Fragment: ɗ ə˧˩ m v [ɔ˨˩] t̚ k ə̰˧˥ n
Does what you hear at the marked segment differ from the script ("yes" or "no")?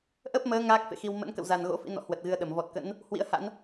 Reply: no